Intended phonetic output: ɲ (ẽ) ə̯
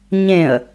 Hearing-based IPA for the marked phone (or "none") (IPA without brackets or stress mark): ẽ